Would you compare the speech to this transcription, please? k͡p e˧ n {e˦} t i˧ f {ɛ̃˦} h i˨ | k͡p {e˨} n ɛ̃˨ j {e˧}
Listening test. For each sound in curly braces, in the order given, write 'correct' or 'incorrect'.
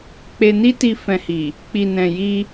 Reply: incorrect, incorrect, incorrect, incorrect

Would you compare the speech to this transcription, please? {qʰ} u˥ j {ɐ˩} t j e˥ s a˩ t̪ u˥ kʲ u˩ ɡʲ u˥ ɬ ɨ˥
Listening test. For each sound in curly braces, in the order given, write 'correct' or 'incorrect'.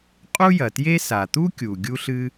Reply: incorrect, correct

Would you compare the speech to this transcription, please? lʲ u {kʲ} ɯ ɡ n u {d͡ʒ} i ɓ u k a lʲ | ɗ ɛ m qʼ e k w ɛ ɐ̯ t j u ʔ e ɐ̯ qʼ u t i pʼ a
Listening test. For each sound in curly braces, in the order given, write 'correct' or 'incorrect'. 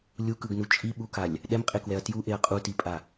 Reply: incorrect, incorrect

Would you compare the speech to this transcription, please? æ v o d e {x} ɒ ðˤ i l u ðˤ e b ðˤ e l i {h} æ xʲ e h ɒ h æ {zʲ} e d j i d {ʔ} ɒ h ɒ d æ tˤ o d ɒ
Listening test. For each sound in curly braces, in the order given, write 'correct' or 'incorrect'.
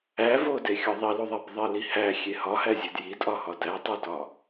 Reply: incorrect, correct, correct, correct

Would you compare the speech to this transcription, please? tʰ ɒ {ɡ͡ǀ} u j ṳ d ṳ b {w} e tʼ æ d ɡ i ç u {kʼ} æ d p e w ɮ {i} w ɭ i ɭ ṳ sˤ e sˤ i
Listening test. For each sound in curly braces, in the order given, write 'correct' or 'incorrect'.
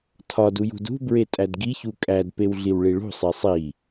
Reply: incorrect, incorrect, correct, correct

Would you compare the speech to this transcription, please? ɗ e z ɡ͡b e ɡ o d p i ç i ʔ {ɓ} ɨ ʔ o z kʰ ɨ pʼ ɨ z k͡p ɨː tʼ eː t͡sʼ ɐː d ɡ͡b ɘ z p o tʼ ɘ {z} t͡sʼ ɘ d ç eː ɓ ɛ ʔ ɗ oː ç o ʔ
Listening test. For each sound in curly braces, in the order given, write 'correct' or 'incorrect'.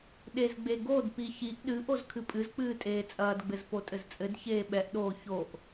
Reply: incorrect, correct

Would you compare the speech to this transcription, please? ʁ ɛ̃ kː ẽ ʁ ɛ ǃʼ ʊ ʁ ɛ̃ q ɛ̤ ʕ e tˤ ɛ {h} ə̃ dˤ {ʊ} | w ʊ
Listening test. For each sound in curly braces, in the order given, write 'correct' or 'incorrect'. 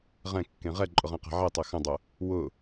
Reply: incorrect, correct

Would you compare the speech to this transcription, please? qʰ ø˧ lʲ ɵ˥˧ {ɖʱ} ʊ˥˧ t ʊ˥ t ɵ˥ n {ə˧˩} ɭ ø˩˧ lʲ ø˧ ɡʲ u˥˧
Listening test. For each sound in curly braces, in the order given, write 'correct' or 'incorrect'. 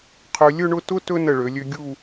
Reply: incorrect, correct

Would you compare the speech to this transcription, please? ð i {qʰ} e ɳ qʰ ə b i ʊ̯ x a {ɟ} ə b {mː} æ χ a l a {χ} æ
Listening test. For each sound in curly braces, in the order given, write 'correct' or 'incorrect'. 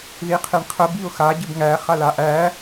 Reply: correct, correct, incorrect, incorrect

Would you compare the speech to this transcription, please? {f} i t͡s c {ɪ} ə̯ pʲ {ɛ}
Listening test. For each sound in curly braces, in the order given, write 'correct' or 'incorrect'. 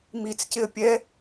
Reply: incorrect, correct, correct

